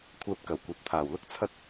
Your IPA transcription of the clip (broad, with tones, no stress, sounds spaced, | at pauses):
kʷʰ ɛː˧ p̚ k ɐ˨˩ w kʷ ɐ˨˥ t̚ t̪ʰ aː˨˩ w l ʊ˥ k̚ t͡sʰ ɐ˥ t̚